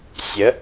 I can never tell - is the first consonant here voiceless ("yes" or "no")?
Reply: yes